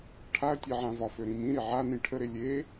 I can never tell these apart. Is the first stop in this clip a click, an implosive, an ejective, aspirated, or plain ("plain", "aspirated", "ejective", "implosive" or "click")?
aspirated